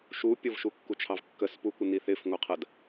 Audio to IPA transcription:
ʃu pʲʊvʃukːut͡ʃʰɑv kːəspukʷɪni θɪfŋʷɜqʰɜd

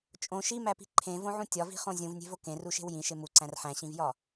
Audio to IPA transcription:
t͡ʃʼõ ʃimæpi̤ ǃʰẽvõʕũ tʲɒvi̤χõ zʲũvnʲe̤vo kẽruʃe̤w jĩʃe muǀæ̃r ħæ̃ɕĩvjɒ

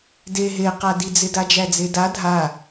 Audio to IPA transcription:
de ɦeqadid͡zɪ dad͡ʒæd͡zeda dʱa

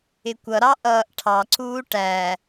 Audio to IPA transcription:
ɪkʷʌɾɑ ʔʌːʔʈʰɑǀuː ʈæ

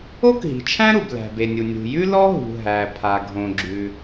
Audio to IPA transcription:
o˥kɦi̤˩t͡ʃʰæ̃˥ ɾu˩blæ̤˩be˩nʲu˩ nʲṳ˩jʉ˥ lɔ˥ɦṳ˩ ɦæ˩pʰa˩ ɡʱõ˩ɡ͡ǁʉ˩

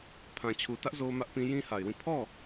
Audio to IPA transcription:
pʰã˨t͡ɕʰu˨tä˦ʔ zo˦mä˦ʔpĩ˦ jĩ˦ha˨ɪ̯wĩ˦˨ pʰɔ˦˨

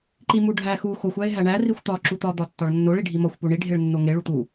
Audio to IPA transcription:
ǃimuɖʱæ xu xoxʷ æe̯ɦæɳæ rixʷt̪ɒ ǁut̪ɒ d̪ɒtːɒɭnːoɭ iɖʱimɒxʷ puɳi ɖʱeɭnːoŋe ɭut̪u

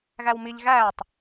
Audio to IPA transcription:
ɣæwmiʎ ɣæːtˤ

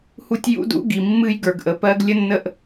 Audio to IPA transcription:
hu˦tʲ jṵ˦dṵ˦ɡi˨ mːɨ˦jɡə˞˨ɡ ʔə˨pɜ˦ɡ lʲə˦nːə˦ʔ

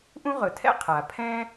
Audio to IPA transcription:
ʔũ˥ʁɵ˩tʰɛ̰˥ qʰa˩ pʰɛ̃ː˥

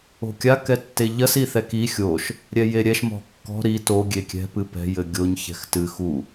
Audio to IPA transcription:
o̤kʲa kɛtːeʎɐs iθɛki xʲoʃ | ɾʲɛjeɾʲɛʃ mɔ̤kːɔ̤ ɾi to ɡʲekʲɛ̤ pɨpɛ̤ jɘɡʲoɲ çɛ̤xtɨ xu

